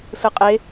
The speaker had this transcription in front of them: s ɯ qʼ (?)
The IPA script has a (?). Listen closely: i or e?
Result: e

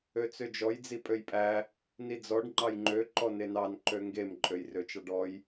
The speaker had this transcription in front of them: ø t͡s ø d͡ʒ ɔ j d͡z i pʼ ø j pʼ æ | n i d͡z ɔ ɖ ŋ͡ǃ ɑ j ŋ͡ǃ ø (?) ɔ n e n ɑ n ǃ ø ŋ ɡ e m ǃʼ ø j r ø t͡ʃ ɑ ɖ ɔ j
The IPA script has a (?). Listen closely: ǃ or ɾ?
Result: ǃ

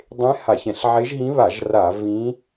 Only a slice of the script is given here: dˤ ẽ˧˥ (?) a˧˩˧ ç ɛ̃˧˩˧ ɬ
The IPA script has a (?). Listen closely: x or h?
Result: h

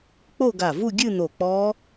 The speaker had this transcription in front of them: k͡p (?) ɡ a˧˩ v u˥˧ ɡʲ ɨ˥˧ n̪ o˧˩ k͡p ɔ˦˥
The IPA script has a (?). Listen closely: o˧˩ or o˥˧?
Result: o˥˧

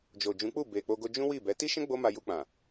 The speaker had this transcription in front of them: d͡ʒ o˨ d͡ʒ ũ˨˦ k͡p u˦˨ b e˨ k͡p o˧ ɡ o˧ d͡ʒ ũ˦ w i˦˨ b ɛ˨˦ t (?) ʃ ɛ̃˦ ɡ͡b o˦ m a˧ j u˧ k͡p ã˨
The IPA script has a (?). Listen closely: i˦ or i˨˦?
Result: i˦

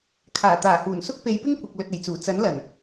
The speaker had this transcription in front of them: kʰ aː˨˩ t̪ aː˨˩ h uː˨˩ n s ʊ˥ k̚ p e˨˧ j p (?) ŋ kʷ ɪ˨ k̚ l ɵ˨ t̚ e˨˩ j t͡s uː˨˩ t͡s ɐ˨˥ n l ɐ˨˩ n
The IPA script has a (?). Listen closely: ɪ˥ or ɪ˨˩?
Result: ɪ˥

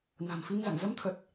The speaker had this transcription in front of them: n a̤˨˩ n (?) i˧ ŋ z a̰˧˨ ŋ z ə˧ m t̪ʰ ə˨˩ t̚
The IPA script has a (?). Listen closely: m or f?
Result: f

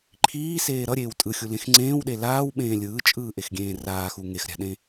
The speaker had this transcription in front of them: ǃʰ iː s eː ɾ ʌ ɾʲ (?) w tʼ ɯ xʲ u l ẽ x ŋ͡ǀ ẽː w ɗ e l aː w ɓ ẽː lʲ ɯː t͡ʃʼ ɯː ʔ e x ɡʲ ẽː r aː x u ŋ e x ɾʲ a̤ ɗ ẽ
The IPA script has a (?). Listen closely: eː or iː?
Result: eː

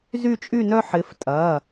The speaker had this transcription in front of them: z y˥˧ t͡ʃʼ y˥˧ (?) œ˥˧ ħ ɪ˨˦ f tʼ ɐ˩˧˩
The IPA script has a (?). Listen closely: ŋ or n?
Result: n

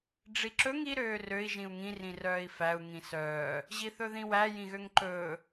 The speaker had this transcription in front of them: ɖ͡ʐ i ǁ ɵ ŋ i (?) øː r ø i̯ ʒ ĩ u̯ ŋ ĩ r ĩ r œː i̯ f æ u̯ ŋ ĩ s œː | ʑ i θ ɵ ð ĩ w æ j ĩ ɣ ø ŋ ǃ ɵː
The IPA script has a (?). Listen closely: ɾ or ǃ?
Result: ɾ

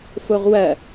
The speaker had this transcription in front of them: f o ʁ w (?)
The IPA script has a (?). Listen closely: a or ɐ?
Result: ɐ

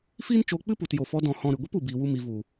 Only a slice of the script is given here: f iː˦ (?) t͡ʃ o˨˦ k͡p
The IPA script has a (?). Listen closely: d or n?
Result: n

